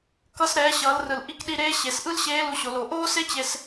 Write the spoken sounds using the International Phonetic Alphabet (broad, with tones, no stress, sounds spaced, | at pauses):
k ʌ˧ s ɾ ɛː˩˧ ɕ ʌː˩˧ l r ɯ˩ l ʔ i˧ k ɗ i˧ ɾ eː˧˥ ɕ e˩˧ s ʔ ɯ˥ l ɕ eː˧˥ l u˧ ɕ o˩˧ l o˩˧ ʔ oː˥ s e˥ t͡ɕ e˧ s